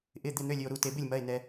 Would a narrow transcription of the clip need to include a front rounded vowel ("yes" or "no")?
yes